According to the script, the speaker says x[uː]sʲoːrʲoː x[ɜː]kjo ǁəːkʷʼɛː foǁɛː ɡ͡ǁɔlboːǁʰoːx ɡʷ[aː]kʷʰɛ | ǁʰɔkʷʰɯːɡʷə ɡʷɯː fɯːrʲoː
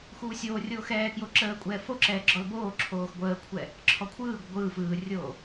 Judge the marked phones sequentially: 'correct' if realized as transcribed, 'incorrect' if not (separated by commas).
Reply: correct, incorrect, incorrect